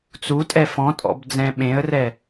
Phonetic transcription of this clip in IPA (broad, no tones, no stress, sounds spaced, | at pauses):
t͡s u tʼ ɛ f ɔ̃ tʼ ɔ̰ b d͡z ɛ̃ ɓ ẽ ə̯ r ɛ